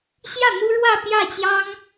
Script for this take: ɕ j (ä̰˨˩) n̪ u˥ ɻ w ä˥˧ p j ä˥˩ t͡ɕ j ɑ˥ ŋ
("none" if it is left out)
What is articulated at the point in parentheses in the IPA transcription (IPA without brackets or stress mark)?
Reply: ä˥˩